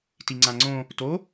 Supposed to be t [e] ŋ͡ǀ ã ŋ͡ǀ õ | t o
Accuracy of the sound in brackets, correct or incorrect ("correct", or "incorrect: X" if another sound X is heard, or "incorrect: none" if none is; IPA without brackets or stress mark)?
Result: incorrect: i